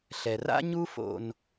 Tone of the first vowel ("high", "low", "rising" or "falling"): low